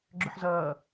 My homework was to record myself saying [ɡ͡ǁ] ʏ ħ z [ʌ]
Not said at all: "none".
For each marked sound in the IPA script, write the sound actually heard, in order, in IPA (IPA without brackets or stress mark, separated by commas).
ɡ͡ǁ, ʌː